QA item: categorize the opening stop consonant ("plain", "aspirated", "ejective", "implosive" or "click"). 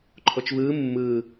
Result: click